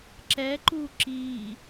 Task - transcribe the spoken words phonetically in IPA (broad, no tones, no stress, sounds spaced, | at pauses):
ǁ ɛ ǃ u ǁ i